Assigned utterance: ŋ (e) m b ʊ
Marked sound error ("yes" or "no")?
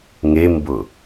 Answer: no